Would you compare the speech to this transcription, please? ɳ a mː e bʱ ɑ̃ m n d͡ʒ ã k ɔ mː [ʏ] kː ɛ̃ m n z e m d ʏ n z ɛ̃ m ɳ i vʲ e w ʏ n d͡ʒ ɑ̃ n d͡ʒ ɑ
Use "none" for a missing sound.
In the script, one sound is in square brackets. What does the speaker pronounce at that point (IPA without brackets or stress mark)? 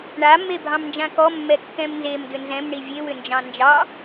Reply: ɛ